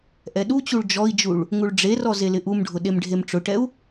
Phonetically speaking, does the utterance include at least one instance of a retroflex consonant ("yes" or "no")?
yes